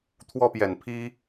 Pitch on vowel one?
high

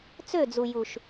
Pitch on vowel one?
falling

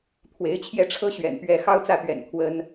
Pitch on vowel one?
rising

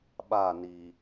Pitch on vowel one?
falling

